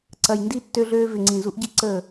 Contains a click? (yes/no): yes